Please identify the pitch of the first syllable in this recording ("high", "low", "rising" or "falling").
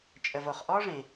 low